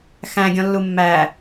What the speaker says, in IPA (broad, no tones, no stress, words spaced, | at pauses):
xæ̃ɡʲɔ̃lːu mːæ